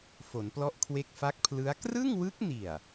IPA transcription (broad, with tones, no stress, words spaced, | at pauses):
fo˩˦nplɔ˦˥ʔkʰwe˦˥k̚ fa˦˥k̚pʰlɯ˦˥a̯ krɯ˥˩ŋwɯ˦˥k̚ni˨˩a̯